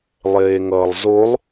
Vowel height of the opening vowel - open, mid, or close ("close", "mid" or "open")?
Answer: mid